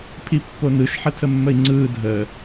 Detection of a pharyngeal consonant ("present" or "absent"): present